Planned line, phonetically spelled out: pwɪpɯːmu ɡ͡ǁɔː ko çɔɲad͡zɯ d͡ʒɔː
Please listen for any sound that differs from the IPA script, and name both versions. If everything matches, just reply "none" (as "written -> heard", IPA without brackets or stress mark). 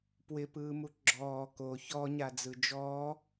none